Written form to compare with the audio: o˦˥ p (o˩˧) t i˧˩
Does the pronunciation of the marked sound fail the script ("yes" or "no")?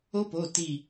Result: yes